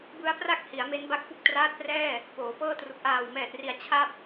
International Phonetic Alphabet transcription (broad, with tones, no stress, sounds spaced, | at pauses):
b ɯ˦˥ a̯ p r a˥˩ k̚ h i˩˦ a̯ m e˦˥ n b a˥˩ k̚ p u˥˩ k̚ t r aː˦˥ t̚ p r ɛː˥˩ | p oː˩˦ p ɤː˥˩ t r u˨˩ k̚ ʔ aː˨˩ w m ɛː˨˩ t̚ r i˨˩ a̯ t͡ɕʰ a˥˩ p̚